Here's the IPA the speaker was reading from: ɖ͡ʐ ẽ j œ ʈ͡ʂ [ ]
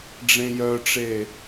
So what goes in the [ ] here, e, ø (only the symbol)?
e